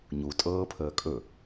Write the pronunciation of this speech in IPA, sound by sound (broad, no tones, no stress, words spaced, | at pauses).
ɲutʼɤːpʰəː kʼɵ